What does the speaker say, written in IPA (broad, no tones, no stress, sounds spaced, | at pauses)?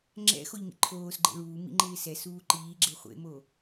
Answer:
ŋ͡ǁ ɛ̰ x o ʎ ŋ ḭ ǃʰ oː s ɡ͡ǃ ḛ ɭ uː m ḭ ŋ͡ǃ ɪː s ɛ s uː ǃ iː ɡ͡ǁ e χʷ ḛ m o